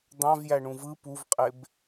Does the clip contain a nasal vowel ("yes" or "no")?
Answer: yes